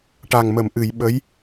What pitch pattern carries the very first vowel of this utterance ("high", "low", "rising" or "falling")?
low